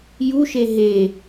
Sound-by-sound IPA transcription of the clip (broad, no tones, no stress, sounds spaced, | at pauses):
j u ʃ e ɦ e